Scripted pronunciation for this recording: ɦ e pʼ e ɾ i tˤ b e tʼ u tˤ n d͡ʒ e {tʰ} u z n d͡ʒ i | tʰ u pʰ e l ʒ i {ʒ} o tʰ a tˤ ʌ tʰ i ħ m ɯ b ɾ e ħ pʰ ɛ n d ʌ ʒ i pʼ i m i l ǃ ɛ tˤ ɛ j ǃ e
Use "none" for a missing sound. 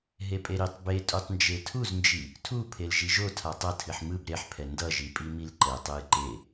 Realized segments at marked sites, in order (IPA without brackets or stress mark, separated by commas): tʰ, ʒ